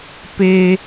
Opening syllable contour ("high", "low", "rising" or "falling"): high